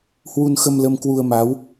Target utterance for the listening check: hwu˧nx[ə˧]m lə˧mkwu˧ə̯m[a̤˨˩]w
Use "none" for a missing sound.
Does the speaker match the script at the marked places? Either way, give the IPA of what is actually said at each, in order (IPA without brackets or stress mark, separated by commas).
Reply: ə˧, a˨˦